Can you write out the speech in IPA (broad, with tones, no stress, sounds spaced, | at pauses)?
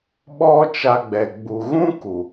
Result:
ɓ ɔ˦ t͡ʃ a˧ ɡ͡b ɛ˨ ɡ͡b u˨ ɣ ũ˦ k u˨